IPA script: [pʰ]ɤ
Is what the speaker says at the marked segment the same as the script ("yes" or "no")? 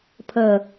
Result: yes